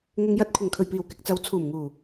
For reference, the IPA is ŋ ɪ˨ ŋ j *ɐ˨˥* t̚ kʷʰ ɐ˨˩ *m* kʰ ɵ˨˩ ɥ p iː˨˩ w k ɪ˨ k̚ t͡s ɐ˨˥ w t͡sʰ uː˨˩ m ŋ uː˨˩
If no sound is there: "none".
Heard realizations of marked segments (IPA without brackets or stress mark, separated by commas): ɐ˨˥, ŋ